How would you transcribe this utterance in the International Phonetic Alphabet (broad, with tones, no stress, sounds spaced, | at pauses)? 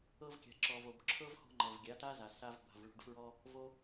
ɤ˧ v kʲ a̤˨ ǁ ɔ˨ v o˨ b ǁʰ ɤ˦ v h o̤˧ ŋ͡ǃ ɤ˨ v ɡʲ a˨˦ t a˦ z a˨ s a˧ v b a̤˨ v ɭ o̤˧ ɖ f ɹ ɔ˦ | v o˧